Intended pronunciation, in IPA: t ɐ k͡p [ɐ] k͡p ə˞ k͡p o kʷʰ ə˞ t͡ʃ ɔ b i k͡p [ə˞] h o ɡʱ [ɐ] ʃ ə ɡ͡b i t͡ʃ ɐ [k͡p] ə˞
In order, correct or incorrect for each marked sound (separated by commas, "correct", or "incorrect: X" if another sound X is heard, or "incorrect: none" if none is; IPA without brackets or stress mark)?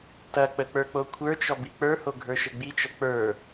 incorrect: ə, correct, incorrect: ə˞, correct